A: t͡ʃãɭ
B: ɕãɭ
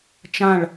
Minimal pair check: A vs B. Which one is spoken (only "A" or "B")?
A